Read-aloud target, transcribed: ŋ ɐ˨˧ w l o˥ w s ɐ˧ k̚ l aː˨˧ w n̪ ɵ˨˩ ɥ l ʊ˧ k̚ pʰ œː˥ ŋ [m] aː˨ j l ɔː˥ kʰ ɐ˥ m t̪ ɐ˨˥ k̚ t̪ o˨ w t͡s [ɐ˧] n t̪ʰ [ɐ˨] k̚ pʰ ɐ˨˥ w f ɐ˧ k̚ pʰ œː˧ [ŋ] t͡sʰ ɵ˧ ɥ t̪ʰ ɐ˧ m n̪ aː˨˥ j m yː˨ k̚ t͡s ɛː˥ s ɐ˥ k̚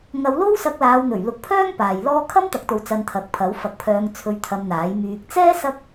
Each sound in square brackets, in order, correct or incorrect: incorrect: p, correct, incorrect: ɐ˨˥, correct

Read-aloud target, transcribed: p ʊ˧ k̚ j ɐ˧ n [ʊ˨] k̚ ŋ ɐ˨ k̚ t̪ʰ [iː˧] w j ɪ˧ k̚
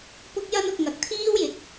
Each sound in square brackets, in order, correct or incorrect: correct, incorrect: iː˥

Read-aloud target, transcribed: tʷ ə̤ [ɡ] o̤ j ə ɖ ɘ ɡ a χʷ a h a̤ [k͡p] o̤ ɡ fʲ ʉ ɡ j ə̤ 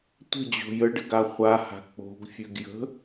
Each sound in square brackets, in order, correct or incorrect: incorrect: d͡ʑ, correct

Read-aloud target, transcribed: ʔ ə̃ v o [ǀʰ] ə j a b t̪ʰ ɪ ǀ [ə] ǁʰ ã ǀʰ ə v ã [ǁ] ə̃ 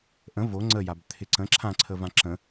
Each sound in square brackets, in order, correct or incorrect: incorrect: ŋ͡ǀ, incorrect: ə̃, correct

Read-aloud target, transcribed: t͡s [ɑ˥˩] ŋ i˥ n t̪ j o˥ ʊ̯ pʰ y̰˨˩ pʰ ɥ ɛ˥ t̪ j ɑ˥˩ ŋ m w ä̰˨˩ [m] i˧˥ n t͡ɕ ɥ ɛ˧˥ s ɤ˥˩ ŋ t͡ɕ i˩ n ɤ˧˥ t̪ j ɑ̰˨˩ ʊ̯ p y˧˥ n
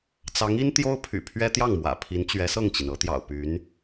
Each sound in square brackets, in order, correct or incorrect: incorrect: ɑ˧˥, incorrect: pʰ

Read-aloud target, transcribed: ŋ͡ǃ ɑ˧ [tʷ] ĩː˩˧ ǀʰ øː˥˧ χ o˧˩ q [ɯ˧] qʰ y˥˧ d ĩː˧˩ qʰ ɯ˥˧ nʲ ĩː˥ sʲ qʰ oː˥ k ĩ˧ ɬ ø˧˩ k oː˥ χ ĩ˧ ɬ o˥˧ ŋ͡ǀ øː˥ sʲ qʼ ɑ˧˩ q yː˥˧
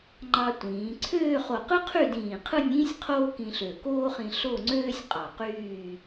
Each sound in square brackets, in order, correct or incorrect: correct, incorrect: ɯ˥

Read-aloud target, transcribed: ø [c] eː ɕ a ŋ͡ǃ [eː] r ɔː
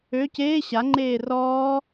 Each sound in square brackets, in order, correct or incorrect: correct, correct

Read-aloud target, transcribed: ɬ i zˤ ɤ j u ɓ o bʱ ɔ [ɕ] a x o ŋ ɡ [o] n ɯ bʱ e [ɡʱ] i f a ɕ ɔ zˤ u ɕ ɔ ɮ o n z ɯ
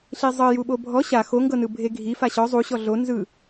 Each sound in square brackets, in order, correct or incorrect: correct, incorrect: ɤ, correct

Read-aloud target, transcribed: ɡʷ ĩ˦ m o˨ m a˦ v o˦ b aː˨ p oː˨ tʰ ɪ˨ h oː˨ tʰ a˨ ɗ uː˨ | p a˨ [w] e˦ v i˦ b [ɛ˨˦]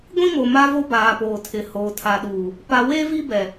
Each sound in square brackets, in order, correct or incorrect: correct, incorrect: ɛ˨

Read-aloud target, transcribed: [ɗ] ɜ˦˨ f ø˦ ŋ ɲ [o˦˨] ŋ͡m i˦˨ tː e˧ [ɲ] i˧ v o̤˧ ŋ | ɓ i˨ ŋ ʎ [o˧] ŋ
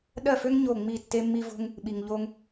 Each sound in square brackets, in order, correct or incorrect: correct, correct, incorrect: mː, correct

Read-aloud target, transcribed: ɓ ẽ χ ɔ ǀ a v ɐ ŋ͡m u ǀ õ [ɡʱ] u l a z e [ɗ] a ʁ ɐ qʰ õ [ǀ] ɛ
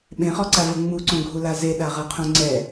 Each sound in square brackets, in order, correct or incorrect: correct, correct, incorrect: ŋ͡ǀ

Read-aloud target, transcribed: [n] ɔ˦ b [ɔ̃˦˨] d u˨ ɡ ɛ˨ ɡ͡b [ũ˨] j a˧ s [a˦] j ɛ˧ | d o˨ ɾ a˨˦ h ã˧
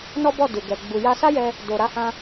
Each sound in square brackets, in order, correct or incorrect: correct, incorrect: ɔ˦˨, incorrect: u˨, correct

